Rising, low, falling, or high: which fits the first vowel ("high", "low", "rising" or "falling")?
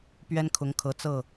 high